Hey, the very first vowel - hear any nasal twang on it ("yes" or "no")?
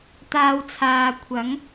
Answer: no